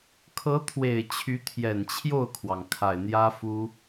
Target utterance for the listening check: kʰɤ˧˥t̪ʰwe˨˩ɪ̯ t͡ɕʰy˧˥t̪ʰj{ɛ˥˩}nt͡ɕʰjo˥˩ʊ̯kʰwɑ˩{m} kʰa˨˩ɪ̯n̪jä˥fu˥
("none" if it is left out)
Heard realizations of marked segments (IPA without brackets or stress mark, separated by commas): ɛ˨˩, ŋ